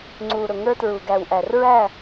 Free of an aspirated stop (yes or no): yes